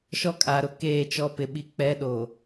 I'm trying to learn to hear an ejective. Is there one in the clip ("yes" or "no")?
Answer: yes